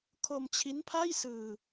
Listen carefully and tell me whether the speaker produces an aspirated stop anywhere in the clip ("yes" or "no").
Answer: yes